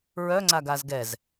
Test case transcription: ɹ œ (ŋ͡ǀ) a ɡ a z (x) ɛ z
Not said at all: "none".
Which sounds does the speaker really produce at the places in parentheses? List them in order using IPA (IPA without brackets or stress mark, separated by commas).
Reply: ŋ͡ǀ, ɡ